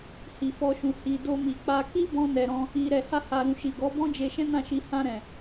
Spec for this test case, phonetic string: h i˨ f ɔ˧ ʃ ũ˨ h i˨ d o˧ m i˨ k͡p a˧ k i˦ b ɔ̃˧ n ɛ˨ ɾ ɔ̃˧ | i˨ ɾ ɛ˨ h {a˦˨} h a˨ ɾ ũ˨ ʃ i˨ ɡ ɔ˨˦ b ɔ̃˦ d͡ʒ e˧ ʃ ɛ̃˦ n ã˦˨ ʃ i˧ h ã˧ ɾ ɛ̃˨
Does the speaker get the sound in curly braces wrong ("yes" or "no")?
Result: yes